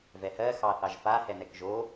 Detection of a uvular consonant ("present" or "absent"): absent